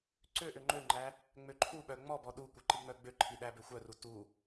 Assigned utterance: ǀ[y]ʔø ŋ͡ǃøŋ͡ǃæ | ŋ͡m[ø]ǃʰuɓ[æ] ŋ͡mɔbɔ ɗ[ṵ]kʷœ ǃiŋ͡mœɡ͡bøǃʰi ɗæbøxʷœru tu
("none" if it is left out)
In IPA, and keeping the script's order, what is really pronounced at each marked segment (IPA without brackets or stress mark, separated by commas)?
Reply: ø, ø, œ, u